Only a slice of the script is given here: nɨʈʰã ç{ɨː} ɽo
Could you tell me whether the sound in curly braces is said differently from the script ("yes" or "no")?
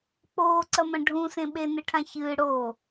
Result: no